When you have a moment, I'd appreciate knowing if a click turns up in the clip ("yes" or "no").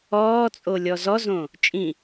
no